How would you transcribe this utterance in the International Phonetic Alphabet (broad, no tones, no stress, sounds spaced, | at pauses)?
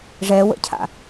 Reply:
ʐ ɛ w ə̰ cʰ a̰